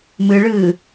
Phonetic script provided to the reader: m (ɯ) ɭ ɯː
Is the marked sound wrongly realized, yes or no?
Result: no